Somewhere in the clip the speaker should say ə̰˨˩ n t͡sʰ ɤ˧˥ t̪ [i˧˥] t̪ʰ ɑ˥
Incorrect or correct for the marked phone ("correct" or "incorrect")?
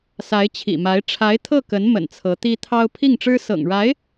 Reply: incorrect